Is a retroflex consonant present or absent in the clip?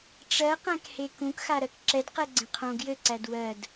present